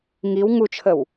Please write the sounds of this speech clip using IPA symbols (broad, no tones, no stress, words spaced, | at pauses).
ŋiw ŋut͡ʃʰəw